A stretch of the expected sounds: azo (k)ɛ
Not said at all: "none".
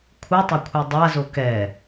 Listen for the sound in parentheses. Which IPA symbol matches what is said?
k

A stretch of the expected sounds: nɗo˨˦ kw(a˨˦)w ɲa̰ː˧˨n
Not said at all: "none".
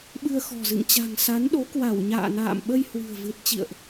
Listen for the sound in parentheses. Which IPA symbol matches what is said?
a˧˩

